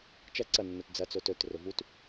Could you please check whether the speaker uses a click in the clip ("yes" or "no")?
yes